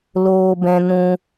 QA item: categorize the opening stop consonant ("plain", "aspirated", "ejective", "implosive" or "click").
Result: plain